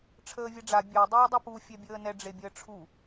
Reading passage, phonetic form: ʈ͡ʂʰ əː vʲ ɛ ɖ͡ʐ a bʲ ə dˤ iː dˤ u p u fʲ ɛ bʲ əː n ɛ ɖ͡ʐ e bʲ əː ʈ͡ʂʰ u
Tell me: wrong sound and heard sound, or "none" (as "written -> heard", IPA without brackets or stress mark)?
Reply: ə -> œ